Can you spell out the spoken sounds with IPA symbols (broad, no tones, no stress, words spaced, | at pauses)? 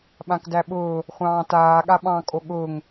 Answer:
ɓãkdæɓʊː | χʷɑ̃ːtaː ɠaɓɑ̃ kʼoɠʊːŋ